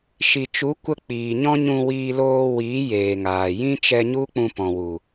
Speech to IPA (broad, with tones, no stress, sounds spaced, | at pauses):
ʃ i˨ t͡ʃ u˨˦ kʷ ə˧ k͡p iː˨ ɲ ɔ̃˦ ɲ ũ˧ w iː˧ l oː˧ w iː˨˦ j eː˨ ŋ aː˨ j ĩ˦ t͡ʃ ɛ˧ ɲ u˦ k͡p ũ˧ p ɔ̃˨ w u˨